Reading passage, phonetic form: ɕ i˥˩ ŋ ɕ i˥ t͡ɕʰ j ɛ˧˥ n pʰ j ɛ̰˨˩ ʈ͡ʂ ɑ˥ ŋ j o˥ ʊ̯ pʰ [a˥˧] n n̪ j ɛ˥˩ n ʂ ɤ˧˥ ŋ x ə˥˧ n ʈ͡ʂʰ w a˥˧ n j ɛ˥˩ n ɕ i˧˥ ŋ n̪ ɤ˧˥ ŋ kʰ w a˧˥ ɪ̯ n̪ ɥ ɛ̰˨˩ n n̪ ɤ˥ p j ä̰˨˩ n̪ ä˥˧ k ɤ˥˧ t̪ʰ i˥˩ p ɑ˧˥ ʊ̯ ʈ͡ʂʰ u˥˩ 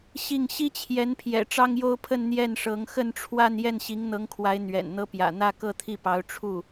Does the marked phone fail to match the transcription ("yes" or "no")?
yes